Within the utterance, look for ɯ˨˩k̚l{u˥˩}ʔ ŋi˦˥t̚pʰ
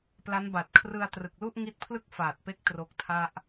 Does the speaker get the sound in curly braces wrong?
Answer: no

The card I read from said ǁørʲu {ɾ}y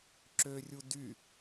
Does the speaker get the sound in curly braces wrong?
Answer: yes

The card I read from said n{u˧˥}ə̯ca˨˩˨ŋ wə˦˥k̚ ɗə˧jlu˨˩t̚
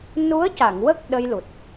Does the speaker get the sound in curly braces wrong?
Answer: no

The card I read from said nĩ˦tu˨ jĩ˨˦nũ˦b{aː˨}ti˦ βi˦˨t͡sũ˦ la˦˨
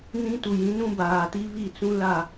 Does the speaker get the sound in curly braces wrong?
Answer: no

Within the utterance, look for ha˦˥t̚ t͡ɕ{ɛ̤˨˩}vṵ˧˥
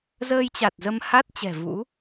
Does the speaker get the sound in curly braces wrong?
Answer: no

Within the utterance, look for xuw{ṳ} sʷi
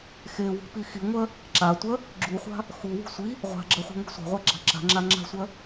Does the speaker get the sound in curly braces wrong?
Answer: no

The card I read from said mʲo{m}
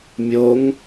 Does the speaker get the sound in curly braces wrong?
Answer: yes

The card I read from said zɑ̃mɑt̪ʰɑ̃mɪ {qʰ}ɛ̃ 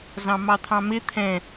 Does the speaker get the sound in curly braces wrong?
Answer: yes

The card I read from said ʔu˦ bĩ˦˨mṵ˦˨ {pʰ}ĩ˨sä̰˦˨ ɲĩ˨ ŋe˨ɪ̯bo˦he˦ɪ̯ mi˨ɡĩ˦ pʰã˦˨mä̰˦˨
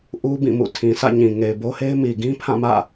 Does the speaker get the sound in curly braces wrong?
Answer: yes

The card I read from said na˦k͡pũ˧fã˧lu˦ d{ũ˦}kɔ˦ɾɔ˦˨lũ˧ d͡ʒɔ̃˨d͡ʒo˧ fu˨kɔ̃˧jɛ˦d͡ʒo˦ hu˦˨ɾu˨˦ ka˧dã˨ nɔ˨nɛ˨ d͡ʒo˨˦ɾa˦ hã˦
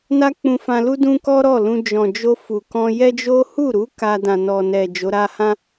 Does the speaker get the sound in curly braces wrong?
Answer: no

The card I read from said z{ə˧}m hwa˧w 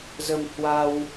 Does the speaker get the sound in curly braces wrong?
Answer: no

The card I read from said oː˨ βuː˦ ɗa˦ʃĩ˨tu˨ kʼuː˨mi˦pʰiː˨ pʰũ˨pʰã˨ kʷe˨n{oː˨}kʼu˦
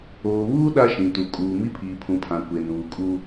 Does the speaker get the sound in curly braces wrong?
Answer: yes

